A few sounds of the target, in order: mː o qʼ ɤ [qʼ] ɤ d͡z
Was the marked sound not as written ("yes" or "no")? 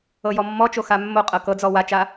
yes